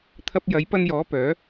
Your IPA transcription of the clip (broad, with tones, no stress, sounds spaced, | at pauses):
t̪ʰ ɐ˧ p̚ j ɐ˨˥ j p ɐ˧ n j ɔː˨˥ p œː˨˥